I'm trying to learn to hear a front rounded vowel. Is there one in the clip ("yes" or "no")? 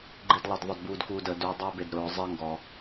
no